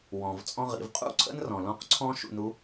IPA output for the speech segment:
wɔ̃˩v t͡sʼɔ̃˧ʁḭ˩˧v qʼṵ˥ǀʰə̰˥nrɔ̃˩ lɔ̃˧˥qǀʰɔ̃˥ʃṵ˧nu˧˥

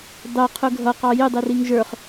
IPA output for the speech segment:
dˤɛqʰʊ ɡʱʌqɑ jɪdˤiriŋ ʒə˞χ

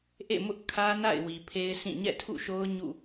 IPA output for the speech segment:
ʔḛ˦˨mʊ˦ʔkʰä˦na̰˦˨ɪ̯ wi˨pʰe˦ɪ̯sʰĩ˦˨ ɲɛ̰˦˨tʰṵ˦˨ʃo˦ʊ̯ ɲṵ˦˨

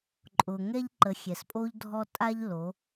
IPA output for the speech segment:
ǃʼʊ˨ ŋɛ˦ʎǃə˨˦xʲɛ˨spʼo˦ʎ dʱɔ˦ tʼa˦ʎlo˨˦

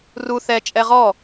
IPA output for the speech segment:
ru θɛt͡ʃʼɛ ʁɔ

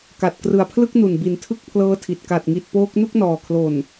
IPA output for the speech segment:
ka˨˩t̚krɯ˨˩a̯pʰlɯ˥˩k̚nu˨˩n bi˩˦ntʰɯ˥˩k̚pʰlɤː˦˥tʰi˨˩t̚ ka˨˩t̚ŋi˨˩t̚poː˦˥k̚ nu˥˩k̚nɔː˨˩kʰlo˨˩n

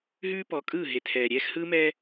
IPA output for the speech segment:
ɦʉː˦pɔ˨˦kʼɯː˦˨ ɦe˨tʰɛː˨ɾʲɛː˦x hɯː˦mɛː˦

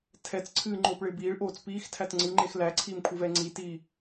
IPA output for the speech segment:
tʰɛt͡sǀʰɨː ŋ͡ǃoːpɭɪːbiːɭ ʔoːt͡spiːx tʰætŋ͡ǀɨŋ͡ǃex læǀʰiːmkʷʰɨvɛː ŋ͡ǀitiː

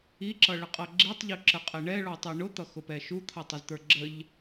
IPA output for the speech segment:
iǁʌɭəqʼʌ ɡ͡ǁitˤʎuǁəqʼɛ ɳɛɭɔtˤi ɳʊt̪ʌxʊpɛ ʃut̪ʰʌtˤəzt̪ə˞ ɡ͡ǁəʎ

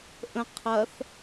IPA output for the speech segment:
ʔə̃ qʰɐθ

